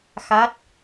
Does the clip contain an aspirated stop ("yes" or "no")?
no